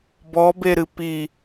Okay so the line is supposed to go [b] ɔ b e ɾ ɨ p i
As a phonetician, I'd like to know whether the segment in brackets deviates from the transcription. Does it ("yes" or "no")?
no